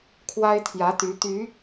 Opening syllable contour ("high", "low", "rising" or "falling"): high